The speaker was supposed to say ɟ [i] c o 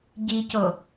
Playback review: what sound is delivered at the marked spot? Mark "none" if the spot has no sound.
i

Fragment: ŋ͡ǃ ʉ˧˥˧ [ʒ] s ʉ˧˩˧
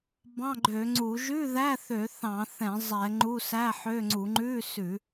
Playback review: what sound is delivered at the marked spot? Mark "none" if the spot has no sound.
none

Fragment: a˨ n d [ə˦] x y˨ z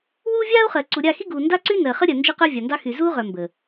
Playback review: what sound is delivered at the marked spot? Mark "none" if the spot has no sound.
ɑ˦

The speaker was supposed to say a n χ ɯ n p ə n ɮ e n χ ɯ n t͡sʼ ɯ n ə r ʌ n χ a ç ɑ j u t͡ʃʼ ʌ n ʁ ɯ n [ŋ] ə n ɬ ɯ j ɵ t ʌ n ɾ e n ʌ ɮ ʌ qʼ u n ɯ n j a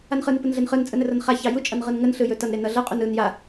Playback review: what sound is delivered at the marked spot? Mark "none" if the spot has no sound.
ŋ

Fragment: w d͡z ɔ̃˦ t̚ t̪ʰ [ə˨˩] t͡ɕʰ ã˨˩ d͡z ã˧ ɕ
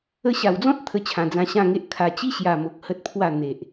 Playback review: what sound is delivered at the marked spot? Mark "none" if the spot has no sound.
ə˧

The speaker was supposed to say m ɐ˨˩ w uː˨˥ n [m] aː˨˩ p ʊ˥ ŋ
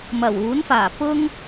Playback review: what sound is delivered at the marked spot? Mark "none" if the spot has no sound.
f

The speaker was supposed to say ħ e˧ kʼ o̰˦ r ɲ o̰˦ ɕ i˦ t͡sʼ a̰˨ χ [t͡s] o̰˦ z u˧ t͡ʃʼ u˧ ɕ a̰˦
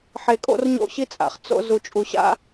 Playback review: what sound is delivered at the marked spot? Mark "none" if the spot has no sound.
t͡s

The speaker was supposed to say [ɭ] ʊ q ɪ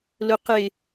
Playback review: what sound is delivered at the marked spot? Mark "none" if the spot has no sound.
l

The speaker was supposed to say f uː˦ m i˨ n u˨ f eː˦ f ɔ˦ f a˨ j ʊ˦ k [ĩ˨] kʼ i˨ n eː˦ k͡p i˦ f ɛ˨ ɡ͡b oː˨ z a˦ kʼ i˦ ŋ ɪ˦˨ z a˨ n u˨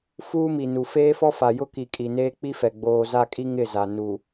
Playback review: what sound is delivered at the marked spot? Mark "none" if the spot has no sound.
i˨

